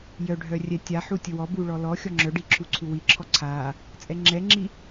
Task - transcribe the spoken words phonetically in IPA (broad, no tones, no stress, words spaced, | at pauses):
jœɖʱœ rʲɛtʲaħu tʲəwɔbu ɭɔlɔxʲɔ ŋ͡ǁœɖi ǁʰuǀʰuwiǁʰɔ ǀʰa | t͡sʼɛŋ͡ǁɛŋ͡ǁi